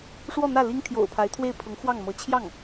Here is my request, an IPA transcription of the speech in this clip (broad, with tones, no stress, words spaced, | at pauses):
ʂwɔ˥˧n̪ä˥˩ li˥ŋt̪ʰjo̰˨˩ʊ̯pʰa˧˥ɪ̯t̪ʰwe˥˩ɪ̯ pʰʊ˧˥ŋxwɑ˥˩ŋmɤ˧˥ t͡ɕʰjɑ˥˩ŋ